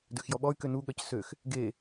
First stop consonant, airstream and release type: plain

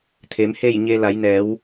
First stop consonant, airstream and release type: aspirated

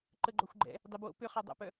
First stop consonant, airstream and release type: click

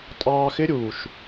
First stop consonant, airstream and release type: ejective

